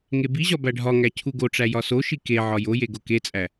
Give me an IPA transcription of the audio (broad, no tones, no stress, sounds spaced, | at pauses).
ŋ e b i ʑ ɒ b æ ɖʱ ɒ ŋ æ cʰ u ɡ o ʈ͡ʂ æ j ɒ s o ʃ i k e ʕ ɒ j o j e ɡ o k e t͡sʼ æ